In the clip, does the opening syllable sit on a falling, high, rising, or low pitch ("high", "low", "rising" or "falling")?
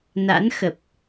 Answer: rising